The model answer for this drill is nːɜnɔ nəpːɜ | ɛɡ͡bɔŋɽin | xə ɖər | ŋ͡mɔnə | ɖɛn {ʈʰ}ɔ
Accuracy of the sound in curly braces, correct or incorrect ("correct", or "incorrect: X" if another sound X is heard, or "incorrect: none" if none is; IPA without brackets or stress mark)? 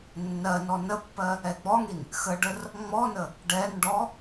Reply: incorrect: ɖ